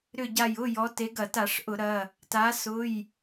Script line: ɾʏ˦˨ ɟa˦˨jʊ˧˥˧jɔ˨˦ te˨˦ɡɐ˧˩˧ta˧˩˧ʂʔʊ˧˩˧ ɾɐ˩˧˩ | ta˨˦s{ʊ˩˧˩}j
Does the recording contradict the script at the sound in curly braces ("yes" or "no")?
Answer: no